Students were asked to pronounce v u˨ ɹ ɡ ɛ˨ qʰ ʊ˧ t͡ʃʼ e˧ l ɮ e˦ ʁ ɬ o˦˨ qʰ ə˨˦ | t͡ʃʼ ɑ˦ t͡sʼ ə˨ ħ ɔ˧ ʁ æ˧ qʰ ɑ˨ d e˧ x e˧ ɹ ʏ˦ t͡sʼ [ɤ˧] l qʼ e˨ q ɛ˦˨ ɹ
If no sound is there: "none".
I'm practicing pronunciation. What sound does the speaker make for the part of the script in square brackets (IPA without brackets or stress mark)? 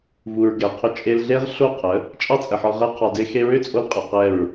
o˧